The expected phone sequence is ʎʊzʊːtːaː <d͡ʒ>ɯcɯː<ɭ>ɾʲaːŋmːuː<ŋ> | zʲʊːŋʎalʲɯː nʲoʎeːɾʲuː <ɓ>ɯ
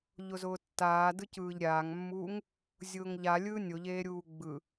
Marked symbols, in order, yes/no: no, no, yes, no

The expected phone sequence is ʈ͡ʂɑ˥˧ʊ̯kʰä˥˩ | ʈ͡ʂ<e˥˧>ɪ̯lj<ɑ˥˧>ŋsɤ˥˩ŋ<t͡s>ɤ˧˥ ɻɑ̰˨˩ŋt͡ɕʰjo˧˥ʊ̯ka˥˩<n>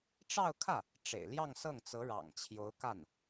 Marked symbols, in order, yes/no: no, yes, yes, yes

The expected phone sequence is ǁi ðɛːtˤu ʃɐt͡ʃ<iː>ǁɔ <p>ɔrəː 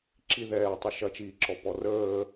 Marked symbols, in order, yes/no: yes, yes

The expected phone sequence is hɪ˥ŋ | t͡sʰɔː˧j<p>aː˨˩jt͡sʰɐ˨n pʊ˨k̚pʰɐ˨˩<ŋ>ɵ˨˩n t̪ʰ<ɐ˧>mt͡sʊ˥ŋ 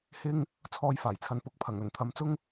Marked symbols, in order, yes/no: no, yes, no

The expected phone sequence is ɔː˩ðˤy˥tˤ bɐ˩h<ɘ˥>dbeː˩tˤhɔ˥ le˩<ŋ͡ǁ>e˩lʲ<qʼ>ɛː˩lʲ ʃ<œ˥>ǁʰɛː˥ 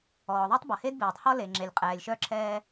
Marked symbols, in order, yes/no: no, yes, yes, yes

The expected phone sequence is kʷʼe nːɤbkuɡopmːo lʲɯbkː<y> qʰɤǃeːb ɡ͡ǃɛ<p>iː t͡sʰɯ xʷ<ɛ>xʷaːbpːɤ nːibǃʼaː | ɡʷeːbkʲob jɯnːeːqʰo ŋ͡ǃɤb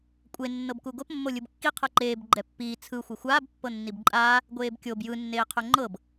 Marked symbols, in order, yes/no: no, no, yes

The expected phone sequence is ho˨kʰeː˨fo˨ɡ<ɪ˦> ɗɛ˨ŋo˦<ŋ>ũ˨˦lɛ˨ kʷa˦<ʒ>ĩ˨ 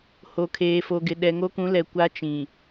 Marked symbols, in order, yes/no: no, no, no

